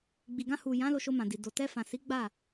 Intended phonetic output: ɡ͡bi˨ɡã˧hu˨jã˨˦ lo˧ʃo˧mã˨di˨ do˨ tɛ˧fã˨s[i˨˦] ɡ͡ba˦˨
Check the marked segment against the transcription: correct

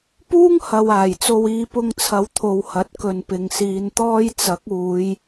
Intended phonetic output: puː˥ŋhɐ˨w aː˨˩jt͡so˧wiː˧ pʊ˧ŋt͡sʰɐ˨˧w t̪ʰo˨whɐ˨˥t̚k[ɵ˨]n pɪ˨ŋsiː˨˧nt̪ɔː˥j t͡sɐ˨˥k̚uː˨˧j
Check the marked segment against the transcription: correct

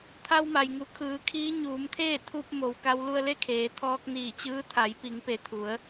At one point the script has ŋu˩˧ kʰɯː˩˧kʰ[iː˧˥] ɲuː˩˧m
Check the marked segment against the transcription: correct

